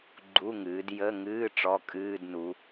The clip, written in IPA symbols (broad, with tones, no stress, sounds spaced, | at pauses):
ɡ͡ǃ u˧˥˧ ŋ ɨː˩˧ d j ə˧˥˧ ŋ ɨː˧˥˧ ʈ͡ʂ ɔ˧˥˧ kʼ ɨː˧˥˧ d n u˩˧